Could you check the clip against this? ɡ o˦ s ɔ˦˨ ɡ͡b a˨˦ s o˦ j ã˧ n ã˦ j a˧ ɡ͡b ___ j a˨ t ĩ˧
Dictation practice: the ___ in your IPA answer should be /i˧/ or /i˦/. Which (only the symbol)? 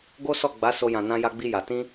i˧